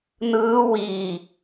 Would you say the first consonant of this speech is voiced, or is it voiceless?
voiced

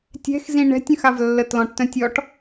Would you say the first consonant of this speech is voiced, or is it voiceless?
voiceless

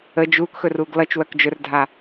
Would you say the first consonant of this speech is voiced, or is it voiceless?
voiced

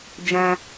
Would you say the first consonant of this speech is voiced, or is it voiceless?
voiced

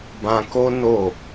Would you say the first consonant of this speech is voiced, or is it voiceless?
voiced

